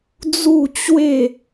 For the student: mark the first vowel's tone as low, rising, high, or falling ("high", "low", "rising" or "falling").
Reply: falling